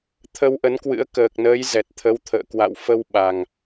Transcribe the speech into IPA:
t̪ʰ ə˧ w ʔ ə˨˦ n k w ɨ̰˧˥ ə̯ k əː˨˩ k̚ n əː˨˦ j z ɛ˨˩ t̚ t̪ʰ ə˨˦ w t̪ʰ ə̰ː˧˨ k w a̰˧˨ w f ə˧ w ɓ a˨˩ ŋ

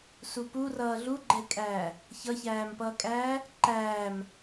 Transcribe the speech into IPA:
s u p u r ʌː ɮ u ɡ͡ǃ ɛ kʼ æː | ç ʌ ç æː m p ʌː kʼ æː | ǃ æː m

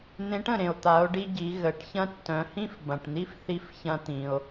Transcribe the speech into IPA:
n̪ ẽ˧˥ ʈ ə̃˩ ɾ ẽ˩ o̯ t̪ a˩˧ o̯ ɖ i˧ ɟ i˩˧ ɣ ə˩˧ ʈ ç ɐ̃˥ tː œ̃˩˧ h ĩ˥ f b ɐ̃˩ ʈ n̪ i˥ f θ i˧ f ç ɐ̃˧ t̪ ĩ˩ o̯

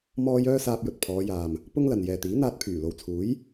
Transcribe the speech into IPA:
m ɔː˥ j œː˥ s aː˧ p̚ j ɵ˨ t̚ pʰ ɔː˨˧ j aː˨ m | p ʊ˥ ŋ l ɐ˨ n j ɛː˨ t̪ iː˨˥ n̪ aː˧ t̚ pʰ yː˨˩ l o˨ w t͡sʰ uː˨˥ j

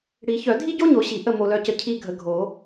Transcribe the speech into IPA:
ɽ i˨˩˦ ç œ˨˩˦ dʱ i˥ ɟ o˥ ɲ o˨˦ ɕ i˨˩˦ ʔ ə˦˨ m o˨ l œ˨˦ c ə˨ cʰ i˦˨ ɡʱ ə˨ ɡʱ o˨˩˦

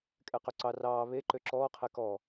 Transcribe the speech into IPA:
kʼ ɛ q ø ǀ ɑ r ɑː β e ǃ ø ǁ ɔː qʰ ɛ k ɔ

